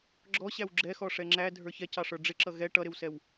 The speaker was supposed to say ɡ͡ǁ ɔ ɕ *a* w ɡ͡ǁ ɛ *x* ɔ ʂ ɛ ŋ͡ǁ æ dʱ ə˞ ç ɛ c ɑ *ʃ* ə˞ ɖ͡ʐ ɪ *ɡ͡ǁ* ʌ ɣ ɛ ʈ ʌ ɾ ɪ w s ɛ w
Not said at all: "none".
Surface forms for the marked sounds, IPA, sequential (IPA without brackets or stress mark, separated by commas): æ, x, ʂ, ǁ